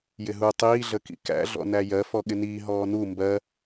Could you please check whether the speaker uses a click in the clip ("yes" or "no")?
no